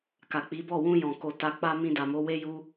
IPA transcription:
k a˨ k͡p i˨˦ b ɔ˦˨ w ũ˧ j ɔ̃˨ k o˨ t a˧ k͡p a˦ m ĩ˧ d a˨ m o˨˦ w e˦ j u˦

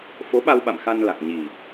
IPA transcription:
f o˨˦ ɓ a˧ w ɓ a̰˧˨ m x a˧ n l a˨˩ k̚ ɲ i˨˩

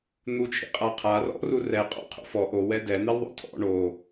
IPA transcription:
n̪ u t͡ʃʰ ḭ qʼ a qʰ a r ɔ̰ r u r ɛ qʼ ɔ̰ qʰ o̰ f ɔ ʔ o w ɛ d ɛ n̪ i l ðˤ o̰ tʰ ɔ̰ ɳ o

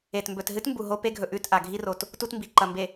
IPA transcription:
e˨ t m b ɵ˨ t ɦ ɨ˦ t m b u˨ ɦ o˦ p e˦ ɡʱ ɵ˨ ʔ ʉ˦˨ t ʔ a˨ ɡʱ i˦ r o˨ t | t u˦ t m b i˨ ǃ ɐ˨ m b e˨

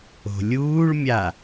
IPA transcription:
o̤ lʲ uː ɭ mʲ a

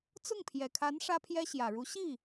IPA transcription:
t͡s ʊ˥˩ ŋ pʰ j ɛ˨˩ kʰ a˧˥ n ʂ ä˥ pʰ j ɛ˥ ɕ j ä˨˩ ɻ u˧˥ ɕ i˥˩

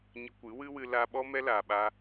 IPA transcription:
ɲ ə˧ kʷ ɨ˨˦ w ɨ˦ w ɨ˧ l a˧ ɓ ɔ˦ m ɛ˧ l aː˨ ɓ a˧

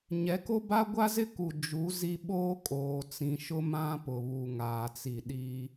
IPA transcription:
ɲ ɛ˨˦ k o˦ b a˦ ɡʷ a˦ z ɪ˦ k u˨ d͡ʒ u˨˦ z i˦ ɓ oː˦ kʼ oː˨ t͡s ĩ˨ ʃ ʊ˦ m ã˦ p ʊ˨ β u˨ ŋ aː˨ t͡s i˨ ɗ iː˦

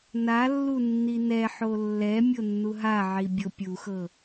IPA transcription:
n a lː u nː i n ɛ ħ o lː ɛ mʲ o nː u ɦ a ʕ i bʲ o pʲ u x ɤ

